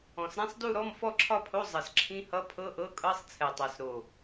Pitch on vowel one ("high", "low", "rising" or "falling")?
low